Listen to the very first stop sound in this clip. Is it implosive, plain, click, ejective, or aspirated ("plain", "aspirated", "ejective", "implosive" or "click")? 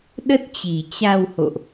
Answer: implosive